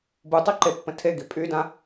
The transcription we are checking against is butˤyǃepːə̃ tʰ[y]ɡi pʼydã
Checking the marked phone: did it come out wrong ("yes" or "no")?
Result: yes